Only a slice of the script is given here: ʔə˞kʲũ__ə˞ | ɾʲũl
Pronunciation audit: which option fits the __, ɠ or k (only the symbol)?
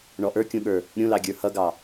ɠ